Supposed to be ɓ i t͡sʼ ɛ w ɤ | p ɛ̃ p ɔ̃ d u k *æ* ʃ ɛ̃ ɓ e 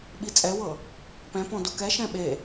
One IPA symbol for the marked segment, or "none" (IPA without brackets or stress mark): ɛ